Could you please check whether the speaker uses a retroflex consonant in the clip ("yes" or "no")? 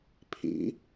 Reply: no